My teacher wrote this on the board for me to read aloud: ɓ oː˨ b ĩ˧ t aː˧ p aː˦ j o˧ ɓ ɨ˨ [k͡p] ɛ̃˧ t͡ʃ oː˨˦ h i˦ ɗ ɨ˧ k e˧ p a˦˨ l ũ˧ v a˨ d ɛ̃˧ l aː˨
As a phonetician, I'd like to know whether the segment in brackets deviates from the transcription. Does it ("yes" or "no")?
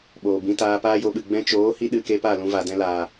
yes